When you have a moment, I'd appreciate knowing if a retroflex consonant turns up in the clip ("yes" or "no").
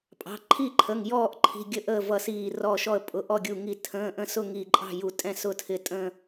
no